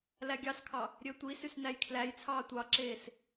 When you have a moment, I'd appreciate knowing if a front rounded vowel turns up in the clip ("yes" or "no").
yes